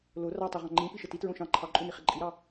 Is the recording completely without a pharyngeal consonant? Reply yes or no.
yes